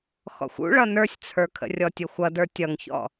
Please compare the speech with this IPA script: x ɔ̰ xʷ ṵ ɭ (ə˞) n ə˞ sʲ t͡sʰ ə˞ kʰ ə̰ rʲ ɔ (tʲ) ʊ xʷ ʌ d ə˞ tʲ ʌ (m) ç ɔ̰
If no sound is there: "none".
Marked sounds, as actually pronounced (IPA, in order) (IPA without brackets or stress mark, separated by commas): ʌ, tʲ, ŋ